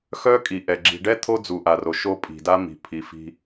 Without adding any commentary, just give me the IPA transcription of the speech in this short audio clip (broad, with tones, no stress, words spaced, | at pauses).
xœ˦kʼi˨ʔɛ˨ ɡ͡ǁi̤˨ɖɛ˦ t̪ʰo˦d͡zu˨ʔa˨ro˨ ʃo˦pʼi̤˨da˦ mi̤˨pʰi˨fi̤˦